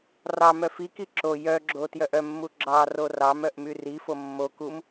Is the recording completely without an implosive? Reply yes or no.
yes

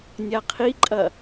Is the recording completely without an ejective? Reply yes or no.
no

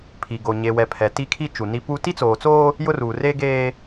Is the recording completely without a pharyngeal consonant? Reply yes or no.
yes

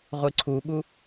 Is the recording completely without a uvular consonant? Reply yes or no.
no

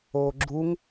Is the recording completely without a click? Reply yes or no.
no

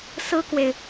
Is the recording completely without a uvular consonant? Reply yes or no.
yes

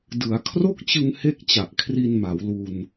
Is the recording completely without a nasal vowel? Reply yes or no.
yes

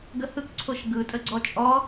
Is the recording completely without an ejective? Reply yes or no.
no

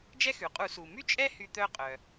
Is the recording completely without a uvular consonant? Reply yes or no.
no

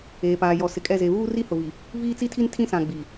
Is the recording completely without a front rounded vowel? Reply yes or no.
yes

